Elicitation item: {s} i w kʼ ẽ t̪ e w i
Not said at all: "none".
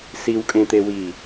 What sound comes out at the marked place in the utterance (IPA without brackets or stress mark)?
s